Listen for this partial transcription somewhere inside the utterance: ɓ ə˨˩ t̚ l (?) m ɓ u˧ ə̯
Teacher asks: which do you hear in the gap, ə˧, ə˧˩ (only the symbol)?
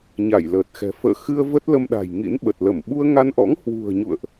ə˧˩